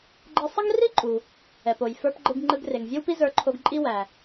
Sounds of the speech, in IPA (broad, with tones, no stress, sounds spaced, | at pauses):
ɡ͡ǃ ɯ˧ sˤ ə˥ ŋ r i˥ ǃʼ u˩ | ɛ˩ p o˩ j f ə˞˧ p ɡ͡ǃ ɯ˧ ɡ ŋ͡ǃ ɯ˧ ɡ r e˩ ŋ vʲ e˥ w p i˥ z ə˞˧ ǃʰ o˧ ɡ ǃʼ i˥ w æ˩